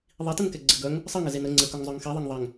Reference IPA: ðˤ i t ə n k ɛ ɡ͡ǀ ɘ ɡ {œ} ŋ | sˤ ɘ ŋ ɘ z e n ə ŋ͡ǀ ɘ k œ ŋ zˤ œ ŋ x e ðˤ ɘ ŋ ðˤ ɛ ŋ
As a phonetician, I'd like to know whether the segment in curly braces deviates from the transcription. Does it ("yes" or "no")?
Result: no